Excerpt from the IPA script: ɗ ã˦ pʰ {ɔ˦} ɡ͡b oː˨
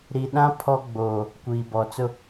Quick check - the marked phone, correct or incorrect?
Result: correct